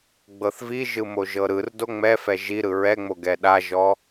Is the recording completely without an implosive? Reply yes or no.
no